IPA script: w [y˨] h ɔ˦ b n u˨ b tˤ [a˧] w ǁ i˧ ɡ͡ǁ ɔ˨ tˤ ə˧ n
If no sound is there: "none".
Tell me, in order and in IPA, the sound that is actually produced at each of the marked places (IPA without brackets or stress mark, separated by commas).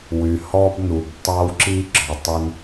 y˨, a˧